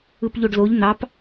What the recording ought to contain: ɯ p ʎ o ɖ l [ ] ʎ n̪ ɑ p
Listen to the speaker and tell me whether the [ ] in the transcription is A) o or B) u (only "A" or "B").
A